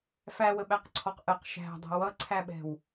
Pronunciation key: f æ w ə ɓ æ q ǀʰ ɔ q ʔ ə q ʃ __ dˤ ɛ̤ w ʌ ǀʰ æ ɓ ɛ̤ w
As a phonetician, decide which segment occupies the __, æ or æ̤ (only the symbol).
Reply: æ̤